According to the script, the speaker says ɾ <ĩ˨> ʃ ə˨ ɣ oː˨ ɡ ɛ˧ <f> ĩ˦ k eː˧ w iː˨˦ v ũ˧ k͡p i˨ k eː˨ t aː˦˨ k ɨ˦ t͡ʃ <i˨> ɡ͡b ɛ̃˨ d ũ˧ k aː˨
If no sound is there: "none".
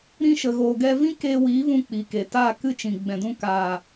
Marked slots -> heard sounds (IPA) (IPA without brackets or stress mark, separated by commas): ĩ˧, v, ĩ˨